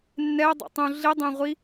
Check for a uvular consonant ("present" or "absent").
present